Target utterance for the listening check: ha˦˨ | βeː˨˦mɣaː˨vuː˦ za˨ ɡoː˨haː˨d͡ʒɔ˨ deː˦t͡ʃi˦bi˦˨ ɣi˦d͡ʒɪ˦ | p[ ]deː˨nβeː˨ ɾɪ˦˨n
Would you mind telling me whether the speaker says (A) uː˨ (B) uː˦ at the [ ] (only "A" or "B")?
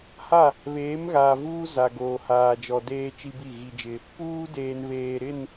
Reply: B